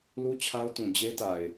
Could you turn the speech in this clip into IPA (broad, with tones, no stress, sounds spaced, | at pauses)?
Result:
l u˦ t͡ɕʰ a˦ ʊ̯ t ũ˨ d͡ʑ e˦ t a˨ ɪ̯